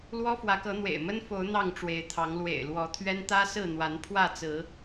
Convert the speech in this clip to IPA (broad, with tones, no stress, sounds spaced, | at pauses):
l w ɔ˦ f w ä˨˦ k ɤ˨˦ n̪ w ḛ˨˩ ɪ̯ m ə˦ n f o˨˦ ʊ̯ n̪ ɑ˥˨ ŋ ʈ͡ʂ w e˨˦ ɪ̯ t̪ʰ ɑ˨˦ ŋ l w ḛ˨˩ ɪ̯ l w ɔ˨˦ t̪ʰ ɥ ɛ˦ n t̪ ä˦ s ɹ̩˥˨ n̪ w a˨˦ n pʰ w ä˥˨ t͡s ɹ̩˨˦